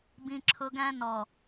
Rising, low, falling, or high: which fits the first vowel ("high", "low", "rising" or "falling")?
high